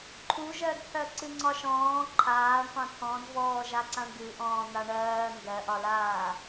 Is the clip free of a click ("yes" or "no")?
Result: no